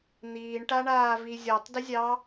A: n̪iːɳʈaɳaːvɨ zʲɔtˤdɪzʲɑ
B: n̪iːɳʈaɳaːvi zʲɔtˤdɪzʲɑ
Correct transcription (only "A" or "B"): B